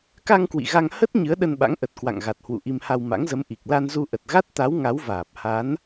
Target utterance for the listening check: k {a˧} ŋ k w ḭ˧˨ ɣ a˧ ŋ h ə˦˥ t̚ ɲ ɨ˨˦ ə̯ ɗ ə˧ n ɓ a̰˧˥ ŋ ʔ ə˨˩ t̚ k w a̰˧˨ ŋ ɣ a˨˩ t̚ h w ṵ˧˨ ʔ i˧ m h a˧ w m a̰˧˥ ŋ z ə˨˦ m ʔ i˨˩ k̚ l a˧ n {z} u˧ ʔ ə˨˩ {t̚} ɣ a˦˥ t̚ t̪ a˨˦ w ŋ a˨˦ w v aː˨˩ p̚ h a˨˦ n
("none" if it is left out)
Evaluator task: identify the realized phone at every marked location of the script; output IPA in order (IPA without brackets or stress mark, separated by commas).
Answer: a˧, z, t̚